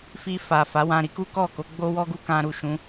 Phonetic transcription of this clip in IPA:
fi˧fa˨ fa˨˦wã˧ ɾi˦ku˦kɔ˦˨ ko˨˦ɡ͡bo˦wɔ˦ ɡu˦kã˧ɾu˨ʃũ˨˦

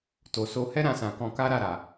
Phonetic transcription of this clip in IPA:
to˨so˧ hɛ˦ɾã˧sã˨kɔ̃˧ ka˦ɾa˦˨ ɾa˨

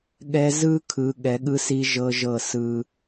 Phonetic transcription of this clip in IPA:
ɠɛ˧ zɯ˥kʰɯ˩˧ ɠɛ˩˧ɠɯ˧si˧ ʒɤ˧ʒɤ˧˩ sɯ˧

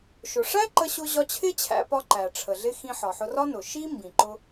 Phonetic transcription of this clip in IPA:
ʃʊ˩ʂæ˥ǃə˧ɕʊ˧ ʑɒ˧t͡ɕʰɪ˥t͡ɕʰæ̰˧pɒ˧ ǃæ˩ʈ͡ʂʰə˩ɮɪ˧ xĩ˧ħɒ˩ħʊ˧rɒ˥ nʊ˩ ʃi˥ mbĩ˩ǃʊ˧

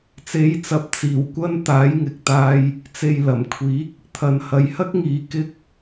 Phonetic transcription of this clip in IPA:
t͡se˨˥jt͡sɐ˨˥p̚ t͡siː˨˩wkʷɐ˧n t̪aː˨˥jŋɪ˨k̚t̪aː˧j | t͡se˨j lɐ˨˩mkʷʰiː˨˥k̚ | t̪ʰɐ˨nhɐ˨jhɐ˥k̚ŋiː˨˧ kɪ˥k̚

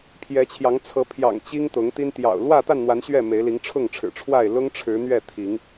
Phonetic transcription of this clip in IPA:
pʰjɛ˨˦t͡ɕʰjɑ˨˦ŋt͡sʰɤ˨˦ pʰjɑ̰˨˩ŋ t͡ɕi˦ŋt̪ʊ˨˦ŋt̪i˦n t̪jɑ̰˨˩ʊ̯ lwä˥˨t̪a˥˨nn̪wa˨˦n ɕɥɛ˥˨me˨˦ɪ̯li˨˦ŋ ʈ͡ʂʰʊ˥˨ŋʈ͡ʂʰɻ̩˨˩ʈ͡ʂʰwa˥˨ɪ̯ lʊ˦ŋ ʈ͡ʂʰɻ̩˨˦n̪ɥɛ˥˨t̪ʰi˨˦ŋ

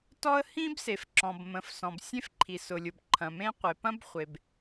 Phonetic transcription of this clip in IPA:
tɔ˥ə̯ hĩ˥bse˩fǁɔ̃˩b mə̃˩f sɔ̃˩bsʲẽ˥fǃʰi˩ sʊ˩lʲʊ˩b ǃʰɐ̃˩mẽ˥qʷe˩ pɐ̃˥bχʷe˩b

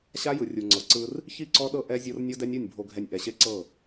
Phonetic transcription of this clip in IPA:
ɕa˦jɯ˨ rʲu˨ŋ͡ǀɤ˨ǀɯ˦r | çi˦˨ǀɔ˦ɗɤ˦ ʔɛ˦zʲɤ˦r nʲo˦dɛ˦nʲɯ˦˨nʲ bʱo˨ɡʱɛ˨nʲ ʔɛ˨ɕe˦ǀɤ˦˨

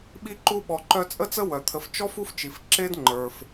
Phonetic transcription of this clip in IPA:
ɓi˦ǃu˦ ɓɔ˨ǃœ˦t͡sʼə˥t͡sə˥ wœ˩t̪ʰə˨ft͡ʃɔ˥f u˥ft͡ʃi˩f ǁe˥dŋ͡ǃə˞˩f

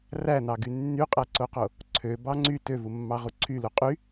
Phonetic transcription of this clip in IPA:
rænɑɡy nːyqʼæǀoqo | ǀʰøbɑ ŋ͡ǀy tøvumːɑʁu ǀʰylu qʼy

